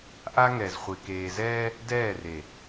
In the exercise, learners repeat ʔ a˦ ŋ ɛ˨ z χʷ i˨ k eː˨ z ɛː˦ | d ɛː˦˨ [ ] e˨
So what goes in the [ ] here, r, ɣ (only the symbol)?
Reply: r